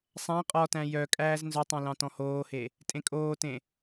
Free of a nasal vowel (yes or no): no